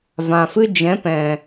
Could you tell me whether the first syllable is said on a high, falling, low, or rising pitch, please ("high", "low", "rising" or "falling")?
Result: low